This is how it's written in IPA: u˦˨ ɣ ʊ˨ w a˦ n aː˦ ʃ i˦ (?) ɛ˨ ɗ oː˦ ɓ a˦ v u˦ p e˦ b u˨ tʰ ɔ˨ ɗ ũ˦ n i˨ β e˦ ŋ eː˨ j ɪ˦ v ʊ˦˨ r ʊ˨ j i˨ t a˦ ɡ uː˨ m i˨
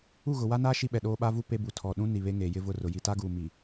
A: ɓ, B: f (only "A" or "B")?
A